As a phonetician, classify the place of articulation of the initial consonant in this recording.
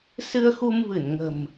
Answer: alveolar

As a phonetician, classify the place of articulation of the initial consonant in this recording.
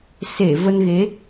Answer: alveolar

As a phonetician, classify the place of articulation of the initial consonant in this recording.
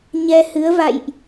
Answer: palatal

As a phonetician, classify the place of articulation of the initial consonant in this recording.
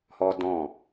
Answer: glottal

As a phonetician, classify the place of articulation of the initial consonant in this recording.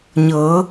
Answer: palatal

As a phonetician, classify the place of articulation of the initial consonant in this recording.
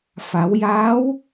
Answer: labial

